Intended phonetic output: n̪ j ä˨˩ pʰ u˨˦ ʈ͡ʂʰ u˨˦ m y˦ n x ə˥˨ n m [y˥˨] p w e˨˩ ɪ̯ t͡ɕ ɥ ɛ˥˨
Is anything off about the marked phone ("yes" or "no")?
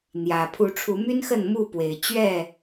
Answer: yes